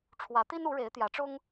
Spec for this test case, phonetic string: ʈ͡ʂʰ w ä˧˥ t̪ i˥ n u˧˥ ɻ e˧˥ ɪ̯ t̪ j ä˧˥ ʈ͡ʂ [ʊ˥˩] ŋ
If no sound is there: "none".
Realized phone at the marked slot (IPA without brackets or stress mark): ʊ˥